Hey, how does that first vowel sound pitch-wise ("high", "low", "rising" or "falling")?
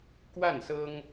falling